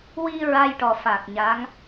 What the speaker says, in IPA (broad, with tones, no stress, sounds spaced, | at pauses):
w i˧ ɹ a˧ j ʈ ɔ˨˩ f a˨˩ k̚ ɲ a˧˥ ŋ